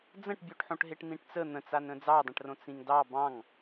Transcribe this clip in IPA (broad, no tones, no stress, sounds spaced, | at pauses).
d͡z ə̃ ʈ bʲ o ʈ ħ õ ʈ ɦ e ʈ n ĩ ʈ t͡s ə n̪ ə̃ t͡s a n ə̃ d͡z ɑ dˤ ə̃ ʈ r õ t͡s ĩ ŋ d ɑ b ɑ̃ ŋ